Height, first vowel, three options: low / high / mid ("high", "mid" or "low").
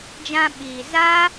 low